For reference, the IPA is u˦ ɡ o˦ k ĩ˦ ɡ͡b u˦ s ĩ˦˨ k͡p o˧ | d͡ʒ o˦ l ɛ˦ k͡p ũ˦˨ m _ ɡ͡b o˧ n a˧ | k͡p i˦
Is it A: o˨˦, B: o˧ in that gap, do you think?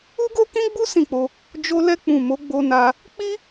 A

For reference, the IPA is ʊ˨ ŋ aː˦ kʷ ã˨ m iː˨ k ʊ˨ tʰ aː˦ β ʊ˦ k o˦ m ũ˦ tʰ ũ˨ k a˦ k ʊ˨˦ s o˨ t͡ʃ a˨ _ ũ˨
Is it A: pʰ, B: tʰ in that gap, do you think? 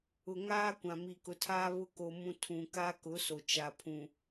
A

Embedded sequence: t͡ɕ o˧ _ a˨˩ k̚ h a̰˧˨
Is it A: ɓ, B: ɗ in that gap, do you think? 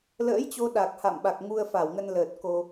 B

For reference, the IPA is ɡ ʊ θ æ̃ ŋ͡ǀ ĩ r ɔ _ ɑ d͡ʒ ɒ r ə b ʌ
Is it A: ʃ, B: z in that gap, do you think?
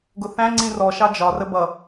A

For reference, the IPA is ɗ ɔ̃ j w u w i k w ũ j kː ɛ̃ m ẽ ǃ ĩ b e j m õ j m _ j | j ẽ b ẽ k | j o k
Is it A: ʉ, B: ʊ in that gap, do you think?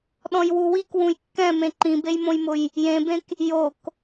B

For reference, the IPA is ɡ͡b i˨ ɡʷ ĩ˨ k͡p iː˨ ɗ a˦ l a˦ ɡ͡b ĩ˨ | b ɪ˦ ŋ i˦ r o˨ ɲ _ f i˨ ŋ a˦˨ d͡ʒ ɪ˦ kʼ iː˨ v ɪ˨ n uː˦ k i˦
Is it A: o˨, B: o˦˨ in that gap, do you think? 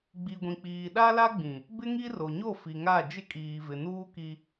B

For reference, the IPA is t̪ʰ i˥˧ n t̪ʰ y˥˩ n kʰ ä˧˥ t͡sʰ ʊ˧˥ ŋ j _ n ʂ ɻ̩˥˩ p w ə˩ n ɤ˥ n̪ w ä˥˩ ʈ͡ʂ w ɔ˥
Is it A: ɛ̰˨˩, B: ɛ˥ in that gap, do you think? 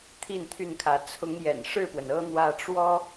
A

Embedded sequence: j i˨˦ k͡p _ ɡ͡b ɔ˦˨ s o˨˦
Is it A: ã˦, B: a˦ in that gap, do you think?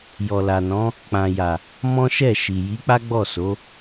B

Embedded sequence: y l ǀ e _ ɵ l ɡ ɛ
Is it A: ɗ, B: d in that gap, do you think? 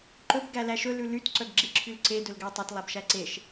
B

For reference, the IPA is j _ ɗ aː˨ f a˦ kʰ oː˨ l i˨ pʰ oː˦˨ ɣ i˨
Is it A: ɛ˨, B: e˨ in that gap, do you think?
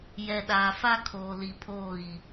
A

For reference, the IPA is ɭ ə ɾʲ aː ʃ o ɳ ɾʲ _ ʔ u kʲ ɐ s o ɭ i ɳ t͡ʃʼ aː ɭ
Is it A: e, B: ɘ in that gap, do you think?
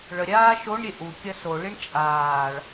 A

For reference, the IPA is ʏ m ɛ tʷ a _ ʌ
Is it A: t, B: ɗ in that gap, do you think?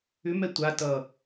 A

